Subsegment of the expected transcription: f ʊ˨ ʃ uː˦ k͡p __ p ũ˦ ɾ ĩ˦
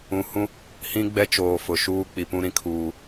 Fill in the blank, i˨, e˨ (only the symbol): i˨